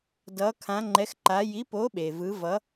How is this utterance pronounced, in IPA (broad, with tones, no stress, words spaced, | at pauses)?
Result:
dʌ˨˥kʰã˨˥ŋ͡ǃɛ˨˥xǃa˨˥ ji˨˥po˨˥ ɓe˩vɯ˨˥vʌ˨˥